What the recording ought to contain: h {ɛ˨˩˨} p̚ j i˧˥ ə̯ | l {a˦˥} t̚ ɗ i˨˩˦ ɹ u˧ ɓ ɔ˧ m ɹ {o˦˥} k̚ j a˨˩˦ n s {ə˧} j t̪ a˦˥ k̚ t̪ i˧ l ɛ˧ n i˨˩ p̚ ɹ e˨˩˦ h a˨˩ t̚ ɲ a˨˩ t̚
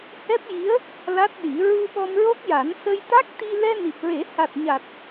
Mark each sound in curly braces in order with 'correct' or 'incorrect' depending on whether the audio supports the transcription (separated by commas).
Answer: incorrect, correct, correct, correct